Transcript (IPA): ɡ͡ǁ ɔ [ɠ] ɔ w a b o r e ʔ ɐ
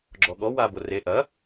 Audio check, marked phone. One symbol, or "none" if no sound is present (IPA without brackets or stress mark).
ɠ